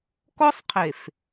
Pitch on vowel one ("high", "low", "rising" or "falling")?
high